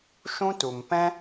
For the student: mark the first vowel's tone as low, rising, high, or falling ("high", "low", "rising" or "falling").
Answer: high